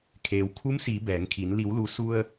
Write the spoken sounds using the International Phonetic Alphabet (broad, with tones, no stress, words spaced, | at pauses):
kʰeː˩wkʰu˧˥msiː˩˧ bɛː˩˧ŋkʰi˩˧n li˩˧wlu˩˧ su˧ə̯